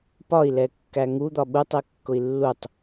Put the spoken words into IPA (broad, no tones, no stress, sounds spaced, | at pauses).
p ɒ i̯ l ɛ kː æ ŋ u d̪ ɒ ɓ u tˤ ɛ kː ʊ i̯ lː u tˤ